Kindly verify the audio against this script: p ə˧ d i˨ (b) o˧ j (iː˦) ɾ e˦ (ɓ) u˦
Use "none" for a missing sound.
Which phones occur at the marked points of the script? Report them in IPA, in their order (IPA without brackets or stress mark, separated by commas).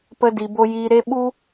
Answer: b, iː˧, ɓ